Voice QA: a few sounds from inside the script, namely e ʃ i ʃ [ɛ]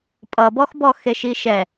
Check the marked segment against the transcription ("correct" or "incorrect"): correct